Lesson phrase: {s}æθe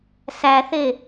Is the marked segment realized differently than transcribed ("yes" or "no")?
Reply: no